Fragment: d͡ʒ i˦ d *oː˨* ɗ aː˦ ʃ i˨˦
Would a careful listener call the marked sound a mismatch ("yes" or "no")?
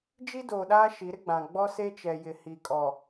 no